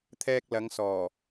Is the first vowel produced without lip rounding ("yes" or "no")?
yes